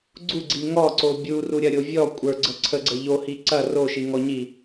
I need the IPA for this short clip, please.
ɡ͡ǀ u ɡ͡ǀ i ŋ ɔ ǀ o bʲ u r u ɾʲ ɐ ɾʲ o vʲ ɔ kʷʼ ə˞ ɡ͡ǀ ə ǀʰ ə ɡ͡ǀ ə ʎ o h i ǀ ɐ r o ʃ i ŋ ɔ ɲ i

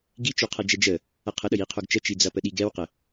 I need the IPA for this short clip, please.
ɡ i t͡ʃ o qʰ ɐ d͡ʒ ɛ d͡ʒ ə | ɐ qʰ ə ɗ ə j i qʰ o ɡ t͡ʃ ə t͡ʃ i d͡z ɐ p ə ɗ i ɡ ɛ w q ə

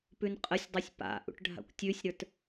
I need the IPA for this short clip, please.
p ʉ n qʼ ə sʲ dˤ ə˞ sʲ p a̰ ʔ ṵ ʈ ɖʱ a̰ kʷ tʲ ʉ sʲ ɾ ə˞ t

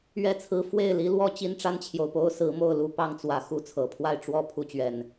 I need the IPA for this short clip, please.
ɥ ɛ˥˨ t͡sʰ ɹ̩˦ f w e˥˨ ɪ̯ l i˨˦ l w ɔ˦ t͡ɕ i˦ n ʈ͡ʂ a˦ n t͡ɕʰ j o˨ ʊ̯ p o˦ ʊ̯ s ɹ̩˨˦ m o˥˨ ʊ̯ l u˦ p ɑ˦ ŋ t͡s w ä˨˦ x u˨˦ t͡sʰ ɤ˨˩ pʰ w a˥˨ ɪ̯ ʈ͡ʂ w ɔ˥˨ pʰ u˥˨ t͡ɕ ɥ ɛ˨˩ n

